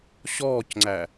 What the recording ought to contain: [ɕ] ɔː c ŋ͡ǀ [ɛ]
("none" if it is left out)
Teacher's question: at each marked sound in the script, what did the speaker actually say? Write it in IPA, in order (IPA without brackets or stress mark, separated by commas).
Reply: ɕ, æ